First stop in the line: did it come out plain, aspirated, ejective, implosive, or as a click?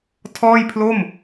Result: aspirated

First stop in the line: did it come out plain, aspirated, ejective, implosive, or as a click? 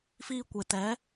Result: plain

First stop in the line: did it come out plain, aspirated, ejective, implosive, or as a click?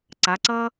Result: click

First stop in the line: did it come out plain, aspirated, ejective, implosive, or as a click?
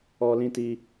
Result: plain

